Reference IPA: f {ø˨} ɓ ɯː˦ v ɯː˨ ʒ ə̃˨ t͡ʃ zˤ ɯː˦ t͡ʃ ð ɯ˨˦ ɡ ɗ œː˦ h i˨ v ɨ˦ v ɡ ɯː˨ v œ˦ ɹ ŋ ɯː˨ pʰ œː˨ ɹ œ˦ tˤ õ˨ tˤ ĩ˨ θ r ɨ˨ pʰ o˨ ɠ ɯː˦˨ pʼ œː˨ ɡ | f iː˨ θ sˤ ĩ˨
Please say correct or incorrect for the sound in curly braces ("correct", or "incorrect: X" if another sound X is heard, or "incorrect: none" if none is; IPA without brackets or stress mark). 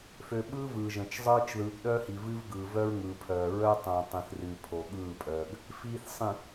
correct